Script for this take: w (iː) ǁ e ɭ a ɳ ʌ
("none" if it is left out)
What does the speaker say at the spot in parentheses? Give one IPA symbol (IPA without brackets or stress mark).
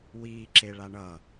iː